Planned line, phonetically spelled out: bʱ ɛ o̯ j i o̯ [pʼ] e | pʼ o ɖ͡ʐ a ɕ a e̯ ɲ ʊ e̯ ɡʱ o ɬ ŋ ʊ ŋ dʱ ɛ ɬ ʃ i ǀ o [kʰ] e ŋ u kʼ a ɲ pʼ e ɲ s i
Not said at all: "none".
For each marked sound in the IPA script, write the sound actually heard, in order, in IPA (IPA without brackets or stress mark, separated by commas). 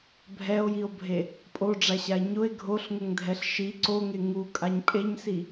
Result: bʱ, ŋ